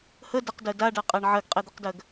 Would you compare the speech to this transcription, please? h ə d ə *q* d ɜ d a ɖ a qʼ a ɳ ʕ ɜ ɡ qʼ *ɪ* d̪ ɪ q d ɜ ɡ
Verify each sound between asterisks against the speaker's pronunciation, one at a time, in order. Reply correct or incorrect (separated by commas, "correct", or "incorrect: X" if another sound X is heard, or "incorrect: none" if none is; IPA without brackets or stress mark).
correct, incorrect: ɛ